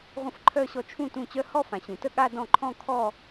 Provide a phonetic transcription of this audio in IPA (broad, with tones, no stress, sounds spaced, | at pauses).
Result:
ʁʷ ə̃˥˧ f ǃʰ œ˥˧ ɕ ɔ˥˩ t͡ʃʰ ũ˥˩ t ũ˥˩ t͡ɕ œ˥˧ h ɔ˥˧ f ã˩˧ ɕ ũ˩˧ t ə˥˧ ɠ a˥˧ d ɔ̃˥˩ ǃʰ ɔ̃˥˧ kʰ ɔ˥˧